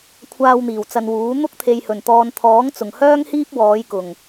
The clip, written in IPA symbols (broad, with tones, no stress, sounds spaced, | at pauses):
kʷʰ aː˧ w n̪ iː˨˩ w t͡s ɐ˨ n w uː˨˥ n̪ ʊ˥ k̚ t̪ʰ e˨ j h ɵ˨˩ n t̪ ɔː˨ n t̪ʰ ɔː˨˥ ŋ t͡s ʊ˨˩ ŋ h œː˥ ŋ h iː˥ p̚ w ɔː˨˧ j k ʊ˨˩ ŋ